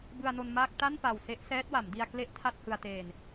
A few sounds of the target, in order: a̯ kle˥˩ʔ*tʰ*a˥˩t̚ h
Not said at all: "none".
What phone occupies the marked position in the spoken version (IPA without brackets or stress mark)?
tʰ